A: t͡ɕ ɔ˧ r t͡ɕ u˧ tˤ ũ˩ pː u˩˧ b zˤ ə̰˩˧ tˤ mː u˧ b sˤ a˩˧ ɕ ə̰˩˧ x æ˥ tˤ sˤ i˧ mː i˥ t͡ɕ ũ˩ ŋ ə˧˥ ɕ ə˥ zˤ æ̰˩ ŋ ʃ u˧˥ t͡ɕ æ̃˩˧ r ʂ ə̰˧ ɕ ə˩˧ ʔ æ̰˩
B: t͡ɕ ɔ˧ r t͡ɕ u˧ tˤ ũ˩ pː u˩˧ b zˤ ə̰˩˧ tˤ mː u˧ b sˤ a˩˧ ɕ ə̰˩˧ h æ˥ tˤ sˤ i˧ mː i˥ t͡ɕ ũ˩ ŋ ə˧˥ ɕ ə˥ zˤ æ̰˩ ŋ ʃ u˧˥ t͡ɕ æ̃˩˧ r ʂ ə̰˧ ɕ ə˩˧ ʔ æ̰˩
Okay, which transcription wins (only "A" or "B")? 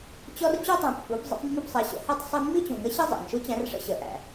B